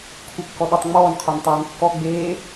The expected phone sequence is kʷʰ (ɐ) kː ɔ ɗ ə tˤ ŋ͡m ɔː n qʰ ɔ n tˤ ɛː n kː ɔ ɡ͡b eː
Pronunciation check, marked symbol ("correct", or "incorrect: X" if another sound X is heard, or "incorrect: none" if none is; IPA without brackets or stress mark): incorrect: ə